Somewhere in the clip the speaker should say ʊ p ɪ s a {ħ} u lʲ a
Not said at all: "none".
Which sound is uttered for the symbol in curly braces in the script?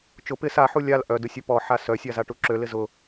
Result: ħ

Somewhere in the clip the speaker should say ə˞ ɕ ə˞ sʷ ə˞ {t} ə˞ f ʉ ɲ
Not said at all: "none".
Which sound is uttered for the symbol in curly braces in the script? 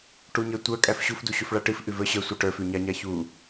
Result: ʈ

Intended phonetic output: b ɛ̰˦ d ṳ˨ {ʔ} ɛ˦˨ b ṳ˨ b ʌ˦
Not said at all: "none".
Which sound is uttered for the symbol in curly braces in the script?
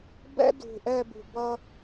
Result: ʔ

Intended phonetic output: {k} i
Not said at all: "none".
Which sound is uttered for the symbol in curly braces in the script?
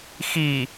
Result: x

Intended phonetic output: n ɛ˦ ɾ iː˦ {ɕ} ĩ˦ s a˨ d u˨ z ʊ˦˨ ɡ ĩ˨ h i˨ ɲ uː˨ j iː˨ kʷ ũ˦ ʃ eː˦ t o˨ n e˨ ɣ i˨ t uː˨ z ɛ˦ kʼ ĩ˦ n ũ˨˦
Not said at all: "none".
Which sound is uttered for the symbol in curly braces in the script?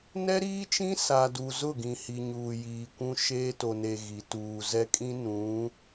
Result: t͡ʃ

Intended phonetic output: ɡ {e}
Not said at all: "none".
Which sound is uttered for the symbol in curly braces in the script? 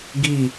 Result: i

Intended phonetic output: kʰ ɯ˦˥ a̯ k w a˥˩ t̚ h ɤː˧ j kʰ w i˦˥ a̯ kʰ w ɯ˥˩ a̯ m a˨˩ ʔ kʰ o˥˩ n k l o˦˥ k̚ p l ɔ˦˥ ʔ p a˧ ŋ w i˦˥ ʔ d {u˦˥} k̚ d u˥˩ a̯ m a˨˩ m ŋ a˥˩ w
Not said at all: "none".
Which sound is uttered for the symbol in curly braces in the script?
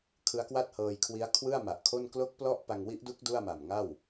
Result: u˦˥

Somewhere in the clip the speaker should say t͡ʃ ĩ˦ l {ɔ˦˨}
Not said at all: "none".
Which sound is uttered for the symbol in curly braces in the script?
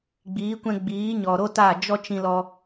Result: ɔ˦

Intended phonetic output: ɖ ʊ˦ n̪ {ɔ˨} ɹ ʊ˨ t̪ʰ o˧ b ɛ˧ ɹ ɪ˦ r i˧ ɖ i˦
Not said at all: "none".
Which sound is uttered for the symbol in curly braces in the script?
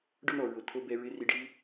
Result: ɔ˨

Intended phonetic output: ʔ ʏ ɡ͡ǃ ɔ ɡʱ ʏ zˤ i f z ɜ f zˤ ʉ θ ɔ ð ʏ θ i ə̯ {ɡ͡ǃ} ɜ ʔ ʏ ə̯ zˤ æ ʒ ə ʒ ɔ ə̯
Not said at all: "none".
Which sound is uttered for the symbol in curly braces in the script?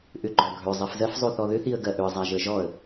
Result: ɡ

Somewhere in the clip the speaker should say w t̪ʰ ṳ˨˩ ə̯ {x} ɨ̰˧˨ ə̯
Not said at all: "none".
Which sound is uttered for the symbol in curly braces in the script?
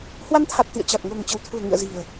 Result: ŋ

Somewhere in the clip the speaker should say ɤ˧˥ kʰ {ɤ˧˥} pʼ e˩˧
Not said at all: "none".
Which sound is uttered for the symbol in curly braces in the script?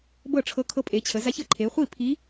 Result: ɤ˧˥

